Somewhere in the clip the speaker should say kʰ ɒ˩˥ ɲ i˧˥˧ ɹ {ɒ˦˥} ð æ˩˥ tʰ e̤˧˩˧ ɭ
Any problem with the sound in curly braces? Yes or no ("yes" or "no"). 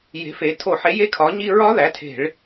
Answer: no